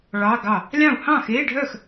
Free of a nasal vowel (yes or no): no